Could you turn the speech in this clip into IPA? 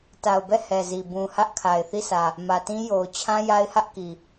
ta˨ʊ̯bɛ˦˨ hɛ˨zi˨ bũ˨hä˦ʔ kʰa˨ɪ̯θi˦˨sä˨ | mä˨tĩ˦jo˨ʊ̯ t͡ɕʰã˦ja˦ɪ̯hä˦ʔ ki˨

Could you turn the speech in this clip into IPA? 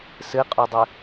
sɨqʼudˤɨ

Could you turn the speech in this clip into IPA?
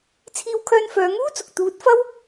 t͡sʰiː˧wkʰœː˧nfœː˨˧ŋuː˥ t͡sʊ˨k̚ t̪uː˨˥t̚ fɐ˥w

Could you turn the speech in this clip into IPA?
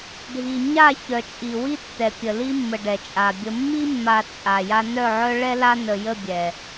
ɖʱi˨ ɲa˦˨ çœ˨t͡ʃʼi˨wi˦ tːɛ˨pʲə˨li˦mːə˨ ɖɛ˨t͡ʃʼa˨bʲə˦ mːi˦mːa˨ t͡sʼa˨ja˦ nœ˦˨ʕœ˦ ɭɛ˦la˦ nə˨jə˦˨bʲɛ˨

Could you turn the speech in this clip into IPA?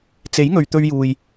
t͡se˨˥jŋɵ˨ɥ t̪ɵ˧ɥjuː˨j

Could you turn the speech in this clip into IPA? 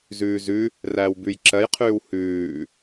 zʉːzʉ | ræːwbʉj ǁɜjqʰʉːw hʉː

